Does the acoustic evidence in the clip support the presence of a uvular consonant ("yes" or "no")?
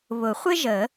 yes